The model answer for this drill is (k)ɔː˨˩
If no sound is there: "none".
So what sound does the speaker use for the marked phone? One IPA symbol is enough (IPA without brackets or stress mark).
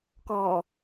k